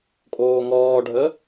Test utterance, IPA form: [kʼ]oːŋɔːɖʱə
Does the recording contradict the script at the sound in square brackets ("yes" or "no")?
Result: no